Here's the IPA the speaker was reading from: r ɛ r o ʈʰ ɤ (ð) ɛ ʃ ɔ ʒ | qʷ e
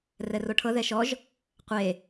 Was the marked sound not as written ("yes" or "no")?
no